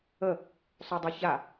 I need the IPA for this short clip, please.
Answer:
ə | sˤ y dˤ ɛ ç a

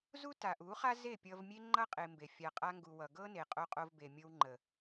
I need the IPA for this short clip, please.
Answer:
z u˦ t a˨ ʔ u˨˦ χ a˦ z e˦˨ pʲ ʌ˧ v mʲ e˦ ŋ͡ǃ ʌ˦ qʼ e˧ m b e˨ fʲ a˨ qʼ a˧ ŋ ɡ u˨ w ʌ˨ ɡ ɤ˦ n e˨ qʼ o˧ qʼ o˧ v b e˨ mʲ ɤ˧ w ŋ͡ǃ ə˨

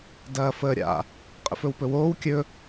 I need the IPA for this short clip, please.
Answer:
d ɐː f əː ɾʲ a̰ | qʼ ə̰ f ɵ w p ɵ w oː w kʲ ɵ

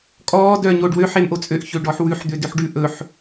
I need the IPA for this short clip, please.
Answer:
kʼ ɔː d œː ɲ oː ɖ w ø ħ e m ʔ o t͡sʼ ø ʔ ç ø ɖ ɔ ħ w ʉ ħ d̪ ø d ø ħ ɖ ʉ ʔ ɵ ħ

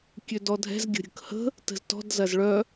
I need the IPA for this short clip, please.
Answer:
kʲ ø d ɔ dʱ ɛ̤ z ɡʲ ə̤ ɾʲ ə̤ k h ə̤ | t ə̤ z t ɔ̤ d z ɐ z ɭ œ

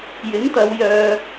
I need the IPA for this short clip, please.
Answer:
j ɪ˨˥ ŋ t̪ ɐ˨˧ w j œː˨

